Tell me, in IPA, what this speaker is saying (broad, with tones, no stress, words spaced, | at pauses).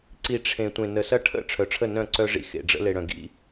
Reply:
ǀi˨ ʈ͡ʂʰẽ˨ tʷẽ˨nə˨sɐ˦ ʈʰə̰˦˨ ʈ͡ʂʰœ˨ʈ͡ʂʰə˦˨ nœ̃˦˨ǀœ˦ʐḭ˦ xḛ˨ɖ͡ʐə̰˦ le˨ɽœ̃˨ ɡḭ˦